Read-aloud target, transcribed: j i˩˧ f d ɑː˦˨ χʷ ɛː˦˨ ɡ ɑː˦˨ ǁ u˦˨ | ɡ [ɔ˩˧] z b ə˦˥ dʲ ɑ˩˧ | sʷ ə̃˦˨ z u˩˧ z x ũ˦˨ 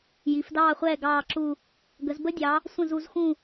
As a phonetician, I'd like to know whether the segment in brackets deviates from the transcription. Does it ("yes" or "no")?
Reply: yes